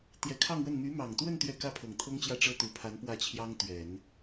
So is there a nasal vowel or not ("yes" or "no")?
no